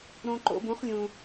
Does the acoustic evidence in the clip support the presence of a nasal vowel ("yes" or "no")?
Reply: yes